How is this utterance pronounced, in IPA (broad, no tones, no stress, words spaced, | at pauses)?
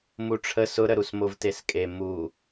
muʈ͡ʂʰə sʊɾəɾusmov teskʼe mu